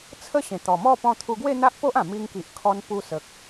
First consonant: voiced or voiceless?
voiceless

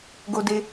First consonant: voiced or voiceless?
voiced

